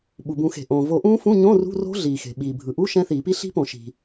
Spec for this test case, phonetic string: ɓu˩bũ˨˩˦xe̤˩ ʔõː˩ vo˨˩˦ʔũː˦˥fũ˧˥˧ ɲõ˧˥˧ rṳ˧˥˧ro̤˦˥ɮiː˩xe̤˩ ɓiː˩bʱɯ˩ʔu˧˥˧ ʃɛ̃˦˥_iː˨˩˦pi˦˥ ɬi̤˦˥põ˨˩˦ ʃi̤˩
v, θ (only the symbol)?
θ